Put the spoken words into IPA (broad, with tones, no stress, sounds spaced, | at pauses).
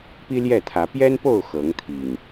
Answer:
p i˦ l j ɛ˥˨ t̪ʰ ä˨˦ p j ɛ˦ n p o˥˨ ʊ̯ x ɤ˨˦ ŋ t̪ʰ i˨˩ ŋ